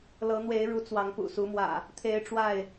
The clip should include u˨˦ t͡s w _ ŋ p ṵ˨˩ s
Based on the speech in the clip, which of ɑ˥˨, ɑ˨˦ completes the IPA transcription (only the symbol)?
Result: ɑ˨˦